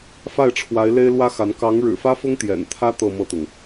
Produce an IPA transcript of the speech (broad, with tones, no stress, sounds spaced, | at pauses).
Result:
f a˥˩ ɪ̯ ʈ͡ʂʰ w a˧˥ ɪ̯ l e˥ ɪ̯ l w ä˥ x a˧˥ n k ɑ˧˥ ŋ ɻ ɻ̩˨˩ f ä˥ f ʊ˥ ŋ t̪ j ɛ̰˨˩ n t̪ʰ ä˥ t̪ ɤ˥˧ m ɤ˥˩ t̪ ʊ˩ ŋ